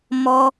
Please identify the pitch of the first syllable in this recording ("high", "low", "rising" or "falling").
high